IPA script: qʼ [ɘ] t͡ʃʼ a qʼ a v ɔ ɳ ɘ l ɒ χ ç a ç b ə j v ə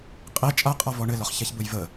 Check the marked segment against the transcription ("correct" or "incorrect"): incorrect